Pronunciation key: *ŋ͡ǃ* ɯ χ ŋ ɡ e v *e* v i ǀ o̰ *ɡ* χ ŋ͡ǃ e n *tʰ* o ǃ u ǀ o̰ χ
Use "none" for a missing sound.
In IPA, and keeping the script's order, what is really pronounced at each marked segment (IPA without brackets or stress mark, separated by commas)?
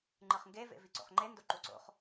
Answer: ŋ͡ǃ, ḛ, none, d